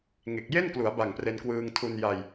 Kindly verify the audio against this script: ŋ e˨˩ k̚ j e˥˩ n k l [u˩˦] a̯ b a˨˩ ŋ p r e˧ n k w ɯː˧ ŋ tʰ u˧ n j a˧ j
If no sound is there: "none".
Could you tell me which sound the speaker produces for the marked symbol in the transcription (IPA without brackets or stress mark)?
u˩˦